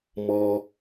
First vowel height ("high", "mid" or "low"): mid